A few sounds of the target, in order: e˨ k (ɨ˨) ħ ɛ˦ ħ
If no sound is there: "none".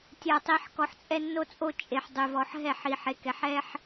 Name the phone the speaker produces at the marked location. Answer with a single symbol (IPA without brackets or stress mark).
ɛ˨